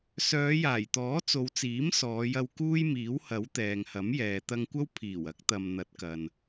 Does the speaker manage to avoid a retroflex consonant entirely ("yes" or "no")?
yes